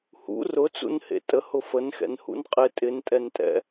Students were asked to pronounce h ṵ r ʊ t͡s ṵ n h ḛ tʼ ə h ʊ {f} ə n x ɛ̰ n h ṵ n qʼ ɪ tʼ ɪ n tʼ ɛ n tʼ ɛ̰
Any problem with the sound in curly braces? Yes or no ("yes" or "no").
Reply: no